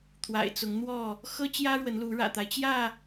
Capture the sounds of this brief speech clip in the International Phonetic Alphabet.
t̪ʰ w a̰˨˩ ɪ̯ t͡s ʊ˨˦ ŋ n̪ w ɔ˥˨ | x ɤ˦ t͡ɕ j ä˦ ɻ w ə˨˦ n l u˨˦ ɻ ä̰˨˩ t̪ a˨˦ ɪ̯ t͡ɕ j ä˥˨

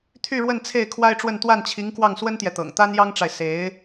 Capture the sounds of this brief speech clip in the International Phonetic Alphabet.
t̪ʰ y˥˧ ɻ w ə˥˧ n t͡sʰ e˥˩ ɪ̯ kʰ w a˥ ɪ̯ ʈ͡ʂ w ə˥˧ n t̪ w a˥˩ n t͡ɕʰ i˧˥ ŋ k w ɑ˥˩ ŋ s w ə˥ n t̪ j ɛ˨ t̪ ɤ̰˨˩ ŋ t̪ a˥ n j ɑ˥ ŋ ʈ͡ʂ a˨ ɪ̯ s e˧˥ ɪ̯

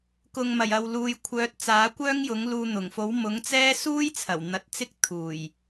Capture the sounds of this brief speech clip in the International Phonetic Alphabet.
k ʊ˨ ŋ m ɐ˨˩ j ɐ˨ w l uː˨ j kʷʰ œː˨˥ t̚ t͡s aː˨˥ kʷ œː˥ ŋ j ʊ˨˥ ŋ l uː˧ n̪ ʊ˨˩ ŋ f o˨˥ w m ʊ˨˥ ŋ t͡s ɛː˥ s uː˥ j t͡sʰ ɐ˨˩ w n̪ ɐ˨˥ t̚ t͡s ɪ˥ k̚ t̪ʰ uː˨˩ j

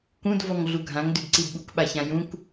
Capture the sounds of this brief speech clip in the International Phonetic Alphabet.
k ũ d v ɔ ŋ ɮ u ɡʱ ã ŋ d ʉ d ǀ i d ɓ u k ɓ a ç ã j ũ k

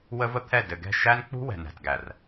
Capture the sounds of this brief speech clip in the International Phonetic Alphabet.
w ə˦ v ə˦ t̪ʰ ɛ˦˨ d ɘ˨ ɡ ɛ̤˦˨ ʃ æ˦ n k͡p ṳ˦ w ɛ̤˨ n æ̤˨ t ɡ æ˨ r

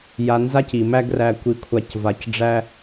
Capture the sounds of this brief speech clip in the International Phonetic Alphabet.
j a˧ n z a˦ c i˨ m æ˦ ɡ r æ˧ kʷ i˧ kʷʰ a˧ c v a˧ c ɖ͡ʐ æ˦

